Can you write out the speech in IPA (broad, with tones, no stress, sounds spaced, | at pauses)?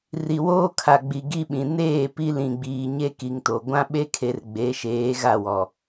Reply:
r i˨ w oː˦ kʰ a˨ ɡ͡b i˨ ɡ i˦ ɓ ĩ˨ n eː˦˨ p i˦ l ĩ˨ ɡ͡b iː˨ ɲ e˦ k i˨ ŋ t o˨ ɡʷ ã˦ ɓ e˦ kʰ e˨ r ɡ͡b e˨˦ ʃ eː˨˦ ɣ a˦˨ w ɔ˨